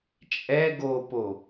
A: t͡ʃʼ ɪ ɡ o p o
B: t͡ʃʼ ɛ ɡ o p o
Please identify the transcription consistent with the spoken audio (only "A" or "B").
B